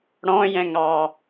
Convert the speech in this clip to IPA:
ɽɔ̃jɛ̃ŋɑ

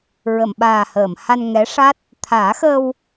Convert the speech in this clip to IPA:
ɹə˨˩˨mɓaː˨˩həː˨˩˨m ha˧nŋɛ˧˥ʂa˦˥t̚ | t̪ʰaː˨˩˦xəː˧w

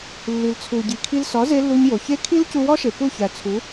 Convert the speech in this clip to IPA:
lːi˨lt͡sʰu˨ɟi˨kʰi˧l sɒ˨˦ze˧ lːu˧ɲjo˨çe˦ kʰi˦lcu˧wɒ˦ʃe˨ pu˦˨çæ˨t͡sʰu˨˦

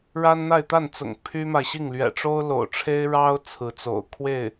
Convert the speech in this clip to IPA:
ɻa˥nn̪a˥˧ɪ̯t̪a˥˩nt͡sʊ̰˨˩ŋ pʰy˥ma˨ɪ̯ɕi˥˩ŋ lɥɛ̰˨˩ʈ͡ʂo˥ʊ̯lo̰˨˩ʊ̯ʈ͡ʂʰe˥ɪ̯ ɻɑ˥ʊ̯ t͡sʰɹ̩˧˥t͡so̰˨˩ʊ̯kʰwe˥˩ɪ̯

